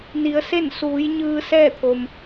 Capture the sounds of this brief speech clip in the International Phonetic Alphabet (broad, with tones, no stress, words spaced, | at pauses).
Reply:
ni˩˧ə̯se˥˨nsuː˩˧jɲɯː˧ sɛː˥˨t̪ʰo˩m